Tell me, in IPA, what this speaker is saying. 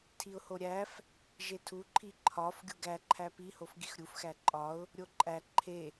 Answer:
tʰiʊ̯hoɾʲæf | ʒetʰuǃʰi ǃʰɒf ɡʲuɡæǃʰæ pihof ɡixɾʲuf xæǃʼɒʊ̯ | ɾʲoǃʼæ ǃʰe

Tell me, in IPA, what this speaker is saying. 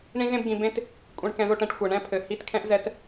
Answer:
ɳĩ˦zẽ˦bɡĩ˧ bẽ˦t | kʷʼẽ˧ɳkɛ̃˧ðo˦˨ʈɛ̃˦ʈ xʷɛ˨ɳɛ̃˦ pʰɘ˨hi˧tkʰɛ̃˦ʔ zɛ˦t

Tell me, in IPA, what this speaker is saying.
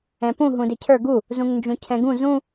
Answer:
ɛ̃pũ ɦũdɪcʰə˞ ɡu | zũŋnd͡ʒũcʰɛ̃ɡũ zũ

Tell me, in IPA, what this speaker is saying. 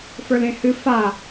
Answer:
fə˞lẽhɨ fa

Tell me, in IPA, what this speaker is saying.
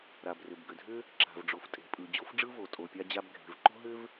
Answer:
ɾa˩brʏ˩bɡʏ˩dʱʏ˥ | ǁa̤˩v ɖ͡ʐo˩ftʼe̤˩ pʼɯ˩ d͡ʑo˥fɖ͡ʐɯ˥vo˩ tʼo˩pʲa˥d͡ʑa˥b ɡʱe̤˩vǃo̤˥ɦʏ˥v

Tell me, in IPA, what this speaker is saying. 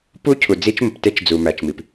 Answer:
pu˦˥ cʰu˨d͡zi˦˥t͡ʃmə˨pte˦˥t͡ʃ d͡zu˨mæ˨t͡ʃmi˨p

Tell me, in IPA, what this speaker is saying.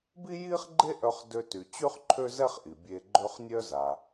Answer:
bi˥ji˥χɡ͡ǃe˥ʔœ˧χ dø˧ty˩t͡ɕy˥χ ǃʰø˥zɛ˥χ ʔi˩bʲe˧ɡ͡ǃø˥χ nʲœ˥za˩

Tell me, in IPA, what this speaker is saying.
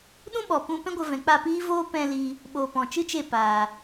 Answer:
ɗũ˦ɓɔ˨ pũ˧pɛ̃˦ɡʷə˧vɛ̃˨ k͡pa˦˨piː˦voː˦ pɛ̃˧ li˧ | ɓo˨ pɔ̃˨t͡ʃɨ˦t͡ʃe˦˨paː˨

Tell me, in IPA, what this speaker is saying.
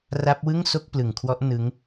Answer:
ra˦˥p̚ wɯ˥˩ŋ so˥˩k̚plɯ˨˩ŋkʰwɔ˦˥ʔ nɯ˦˥ŋ

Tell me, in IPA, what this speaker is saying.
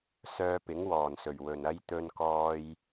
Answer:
sœː˧ pɪ˨˥ŋwɔː˨˩nsɵ˨˩ɥ wɵ˨˩nɐ˥j t̪ɵ˧n kɔː˧j

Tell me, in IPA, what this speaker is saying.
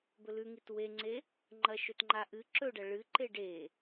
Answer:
bɵlʉŋit weŋ͡ǀe | ŋ͡ǃɐʃɵtŋ͡ǃaʔɨ ǁɵɖɐ ɭɨǃeɖ e

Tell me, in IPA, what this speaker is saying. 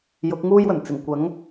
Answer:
jʊ˨˥k̚ŋuː˥jwɵ˨˩n t͡sɪ˨˩ŋkʷɐ˨˥ŋ

